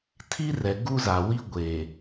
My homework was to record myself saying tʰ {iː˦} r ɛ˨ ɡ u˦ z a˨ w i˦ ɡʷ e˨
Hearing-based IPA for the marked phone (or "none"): i˦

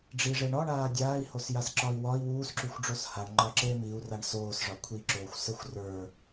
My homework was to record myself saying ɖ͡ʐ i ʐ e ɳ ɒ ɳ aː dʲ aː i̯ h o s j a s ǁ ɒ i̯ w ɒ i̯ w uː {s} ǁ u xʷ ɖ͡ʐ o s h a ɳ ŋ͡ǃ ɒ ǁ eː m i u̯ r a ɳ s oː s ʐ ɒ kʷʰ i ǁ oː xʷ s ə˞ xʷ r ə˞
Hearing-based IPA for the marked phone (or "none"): s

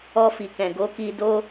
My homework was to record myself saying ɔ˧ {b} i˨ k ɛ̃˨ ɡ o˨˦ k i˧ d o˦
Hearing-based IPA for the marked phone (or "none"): f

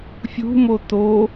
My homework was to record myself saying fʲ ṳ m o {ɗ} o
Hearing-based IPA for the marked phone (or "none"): t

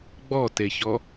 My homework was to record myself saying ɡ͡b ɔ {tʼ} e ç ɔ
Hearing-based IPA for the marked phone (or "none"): t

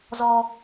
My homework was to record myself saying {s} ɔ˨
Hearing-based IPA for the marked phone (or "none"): z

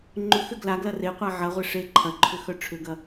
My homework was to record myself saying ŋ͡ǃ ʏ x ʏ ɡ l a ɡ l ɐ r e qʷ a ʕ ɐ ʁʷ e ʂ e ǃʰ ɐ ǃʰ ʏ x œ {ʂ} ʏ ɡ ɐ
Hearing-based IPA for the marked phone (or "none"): ʈ͡ʂʰ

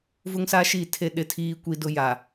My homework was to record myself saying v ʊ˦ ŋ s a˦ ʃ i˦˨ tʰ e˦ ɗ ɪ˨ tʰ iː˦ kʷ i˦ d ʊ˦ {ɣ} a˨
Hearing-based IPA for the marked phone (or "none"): j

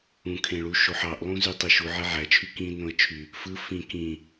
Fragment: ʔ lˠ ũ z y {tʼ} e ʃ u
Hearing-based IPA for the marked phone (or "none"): tˤ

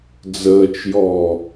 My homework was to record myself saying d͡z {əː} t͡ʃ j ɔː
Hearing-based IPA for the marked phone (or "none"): əː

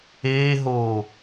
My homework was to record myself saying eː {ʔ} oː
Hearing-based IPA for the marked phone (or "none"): ɦ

